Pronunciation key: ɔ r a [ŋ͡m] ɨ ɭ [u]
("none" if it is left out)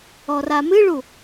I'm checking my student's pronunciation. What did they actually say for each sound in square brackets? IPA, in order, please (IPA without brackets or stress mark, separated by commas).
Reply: m, u